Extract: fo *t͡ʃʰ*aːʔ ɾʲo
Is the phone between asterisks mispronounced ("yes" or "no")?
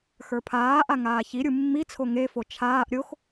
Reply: no